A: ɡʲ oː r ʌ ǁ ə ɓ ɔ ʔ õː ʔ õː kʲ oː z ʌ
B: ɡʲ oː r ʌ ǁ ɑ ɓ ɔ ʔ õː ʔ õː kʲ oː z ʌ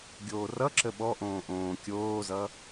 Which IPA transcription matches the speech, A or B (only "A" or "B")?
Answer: A